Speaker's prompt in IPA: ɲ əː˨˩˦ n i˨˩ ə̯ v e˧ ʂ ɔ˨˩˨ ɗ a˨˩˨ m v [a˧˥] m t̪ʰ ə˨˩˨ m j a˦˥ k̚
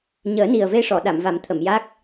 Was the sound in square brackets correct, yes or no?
no